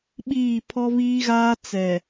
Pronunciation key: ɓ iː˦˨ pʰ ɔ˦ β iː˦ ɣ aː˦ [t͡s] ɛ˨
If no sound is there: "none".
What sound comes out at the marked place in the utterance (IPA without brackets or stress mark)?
t͡s